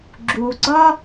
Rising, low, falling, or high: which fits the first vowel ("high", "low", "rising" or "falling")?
low